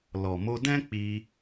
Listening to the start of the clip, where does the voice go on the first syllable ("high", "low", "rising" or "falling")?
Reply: low